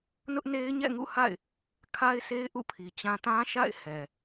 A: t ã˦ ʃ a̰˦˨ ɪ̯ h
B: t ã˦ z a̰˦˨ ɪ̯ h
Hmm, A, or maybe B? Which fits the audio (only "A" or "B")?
A